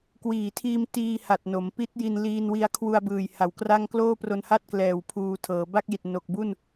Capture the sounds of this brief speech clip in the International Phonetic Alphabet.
k w iː˨˩ tʰ iː˧ m t iː˧ h a˨˩ t̚ n o˩˦ m p i˦˥ t̚ j i˧ n l iː˧ n w i˧ a̯ kʰ w u˧ a̯ b ɯː˨˩ j h a˩˦ w k r a˥˩ ŋ k l oː˥˩ p r o˧ n h a˥˩ t̚ k l ɛː˨˩ w pʰ uː˧ tʰ ɤː˩˦ b a˥˩ k̚ j i˨˩ t̚ n o˨˩ k̚ b u˥˩ n

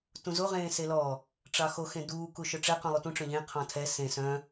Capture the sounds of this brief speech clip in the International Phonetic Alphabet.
t ũ z o ʁ ẽː s e l ɔ | ʈ͡ʂ ɑ x o x ẽ d uː k u ʃ œ ʈ͡ʂ ɛ q ũ lˠ u t ũ ʈ͡ʂ œ̃ ʎ ẽ qʰ ɔ̃ tʰ ɛ s ẽ s œ̃

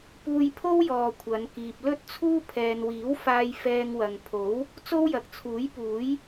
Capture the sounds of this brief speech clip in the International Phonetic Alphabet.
p uː˧ j pʰ o˥ w j ɔː˨ kʷʰ ɐ˨˧ n k iː˨ p̚ l ɵ˥ t̚ t͡sʰ uː˥ pʰ ɛː˨ n w iː˨˥ w f aː˧ j f ɛː˧ ŋ w ɐ˨ ŋ pʰ o˨˥ w | t͡s o˥ w j ɐ˨ k̚ t͡sʰ uː˨˥ j p uː˨˥ j

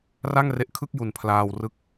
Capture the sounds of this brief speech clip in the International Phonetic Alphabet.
r a˥˩ ŋ r e˦˥ ʔ kʰ ɯ˥˩ k̚ j u˨˩ n pʰ l aː˧ w r ɯ˦˥ k̚

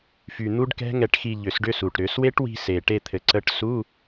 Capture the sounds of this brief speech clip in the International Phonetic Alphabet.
f y˨˩ n̪ u˦˥ ɖ k ɛ̤˦˥ ŋ ɛ˦˨ ʈ x i˦˨ ʎ ʏ˧˩˧ s ɖ ʏ˧˥˧ s u˨˩ ʈ ɾ ʏ˧˩˧ s w e˦˥ ʈ w i̤˦˨ s e˨˩ ʈ e˦˨ t̪ʰ ɘ˨˩ ǀ ə˧˥˧ ʈ s u˧˥˧

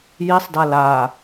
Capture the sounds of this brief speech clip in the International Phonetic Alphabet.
j i sˤ d a l a

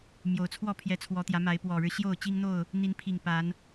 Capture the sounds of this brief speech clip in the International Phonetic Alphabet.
m j o˨˩ ʊ̯ t͡sʰ w ɔ˥˨ pʰ j ɛ˨˦ t͡sʰ w ɔ˨˦ t̪ j ä˨˦ m a˨˦ ɪ̯ p w ɔ˨˩ ɻ ɻ̩˦ ɕ j o˥˨ ʊ̯ t͡ɕ i˦ ŋ n̪ o˥˨ ʊ̯ | n̪ i˨˦ n pʰ i˨˩ ŋ p a˨˦ n

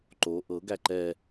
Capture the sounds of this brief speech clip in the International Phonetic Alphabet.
ǃ o ʔ ɤ ɡ æ ǃ ɛ

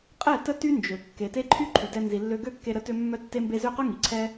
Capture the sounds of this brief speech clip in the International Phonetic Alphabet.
qʼ ɛ˦˨ t ə˦ t y˦ n d͡ʒ ø˨ kː e˨ t e˦ ǃʰ y˦ ǃʰ y˨ d ɛ˧ n z i˨ lː ø˧ ɡ ø˦˨ kː e˧ ɾ ə˧ t ø˦ mː œ˦ tː e˦ m b e˦ z ø˦ q œ˦ ŋ i˨ ǀʰ ɛ˦

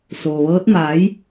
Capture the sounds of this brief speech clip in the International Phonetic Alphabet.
s oː˩ ʋ ɤː˧˥ t̚ m aː˩˧ j

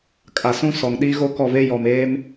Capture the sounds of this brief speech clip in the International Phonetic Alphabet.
kʼ a˨ s ũ˦ s ɔ˨ ŋ ɗ i˦ ɣ o˦ k ɔ˦˨ v e˦ j ɔ˨ m eː˦ m

